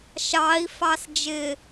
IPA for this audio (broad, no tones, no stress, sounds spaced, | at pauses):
ʃ ɑ i̯ f ɑ s d͡ʒ ɪ